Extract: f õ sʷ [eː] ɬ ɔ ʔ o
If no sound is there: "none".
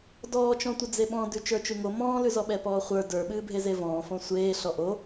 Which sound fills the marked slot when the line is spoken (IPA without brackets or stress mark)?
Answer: eː